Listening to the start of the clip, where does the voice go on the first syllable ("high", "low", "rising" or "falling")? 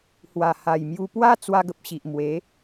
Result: low